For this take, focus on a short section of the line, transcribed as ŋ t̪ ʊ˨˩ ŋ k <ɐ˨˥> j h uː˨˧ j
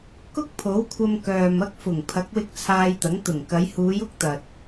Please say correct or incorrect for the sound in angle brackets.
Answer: incorrect